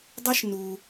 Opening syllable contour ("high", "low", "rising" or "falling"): high